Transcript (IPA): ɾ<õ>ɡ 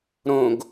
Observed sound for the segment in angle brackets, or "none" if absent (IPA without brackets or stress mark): õ